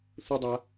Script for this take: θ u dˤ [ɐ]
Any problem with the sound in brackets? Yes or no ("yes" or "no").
yes